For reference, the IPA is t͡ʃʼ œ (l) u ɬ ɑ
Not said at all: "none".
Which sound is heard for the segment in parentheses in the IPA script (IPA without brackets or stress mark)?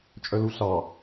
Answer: l